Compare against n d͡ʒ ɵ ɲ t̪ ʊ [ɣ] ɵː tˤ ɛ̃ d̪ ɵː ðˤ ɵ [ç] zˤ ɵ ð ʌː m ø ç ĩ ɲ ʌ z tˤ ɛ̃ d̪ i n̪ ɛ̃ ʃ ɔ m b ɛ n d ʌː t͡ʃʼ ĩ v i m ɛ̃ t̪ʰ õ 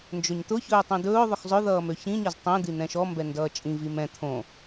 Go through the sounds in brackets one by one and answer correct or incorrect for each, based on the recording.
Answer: incorrect, incorrect

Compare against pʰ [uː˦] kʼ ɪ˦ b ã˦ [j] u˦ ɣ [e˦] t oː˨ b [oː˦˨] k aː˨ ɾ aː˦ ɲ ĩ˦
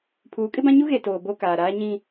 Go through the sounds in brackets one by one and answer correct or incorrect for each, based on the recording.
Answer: incorrect, incorrect, incorrect, incorrect

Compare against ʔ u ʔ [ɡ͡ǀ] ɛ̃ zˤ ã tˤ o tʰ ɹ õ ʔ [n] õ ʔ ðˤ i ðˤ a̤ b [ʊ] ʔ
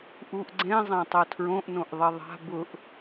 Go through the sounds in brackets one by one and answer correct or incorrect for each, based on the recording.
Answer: correct, correct, correct

